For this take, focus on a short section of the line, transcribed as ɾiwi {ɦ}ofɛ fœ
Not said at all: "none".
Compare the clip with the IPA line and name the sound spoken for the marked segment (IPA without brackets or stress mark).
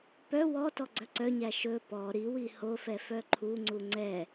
h